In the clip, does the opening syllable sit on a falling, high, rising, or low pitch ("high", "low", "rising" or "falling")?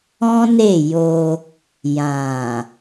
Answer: high